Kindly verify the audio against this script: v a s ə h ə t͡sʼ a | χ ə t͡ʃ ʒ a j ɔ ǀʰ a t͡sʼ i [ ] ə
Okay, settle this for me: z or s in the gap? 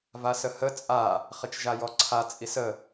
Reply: s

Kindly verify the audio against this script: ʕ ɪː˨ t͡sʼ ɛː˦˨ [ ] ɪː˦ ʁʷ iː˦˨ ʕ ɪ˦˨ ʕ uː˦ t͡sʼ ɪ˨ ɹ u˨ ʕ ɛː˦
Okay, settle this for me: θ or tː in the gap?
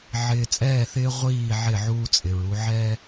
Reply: θ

